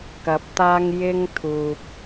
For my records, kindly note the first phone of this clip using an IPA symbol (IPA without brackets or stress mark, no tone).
k